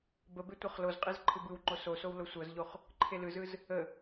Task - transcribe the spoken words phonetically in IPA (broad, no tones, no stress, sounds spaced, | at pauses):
b ə b e tʷ ɤ χ l o z qʼ e z ǃʰ ɯ b ɯ w ŋ͡ǃ o s o s o w l o sʷ ɤ z ʎ o χ | ǃʰ e l ɯ z ɯ z | ə